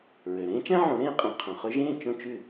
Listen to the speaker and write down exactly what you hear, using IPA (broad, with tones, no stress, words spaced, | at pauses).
ɹø˩ɾẽː˥t͡ʃæ̃˥ʕõ˩˥ ɾẽː˧qʼɛ̃˩˥ qʰœ̃˩χø˧ʒẽː˥˩ t͡ʃõ˥˩t͡ʃʉ˥˩